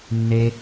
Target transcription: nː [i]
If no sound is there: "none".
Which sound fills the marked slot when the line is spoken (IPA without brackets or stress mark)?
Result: e